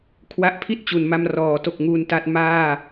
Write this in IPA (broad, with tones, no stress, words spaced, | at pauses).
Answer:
kʰwa˦˥ʔpʰi˥˩t̚ t͡ɕu˩˦nma˧m rɔː˩˦to˨˩k̚ ŋuː˧nta˦˥t̚ maː˥˩